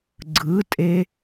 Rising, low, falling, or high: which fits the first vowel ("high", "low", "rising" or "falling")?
rising